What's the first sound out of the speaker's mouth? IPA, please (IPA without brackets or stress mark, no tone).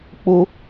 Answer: k͡p